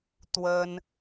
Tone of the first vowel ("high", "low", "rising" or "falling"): high